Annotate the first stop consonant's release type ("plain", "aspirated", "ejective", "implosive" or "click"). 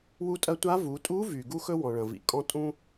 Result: ejective